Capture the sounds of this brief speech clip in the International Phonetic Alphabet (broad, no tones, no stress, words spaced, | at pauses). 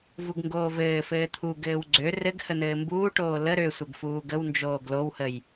vuɡŋɡoːvɘːfɘː t̪ʰuɡɘːw ɡ͡ǀø rɘɡ hən̪ɘːmbuːʈoː lə ɾøsʷəɡ fuːɡəwnd͡ʒoːɡ lowhəj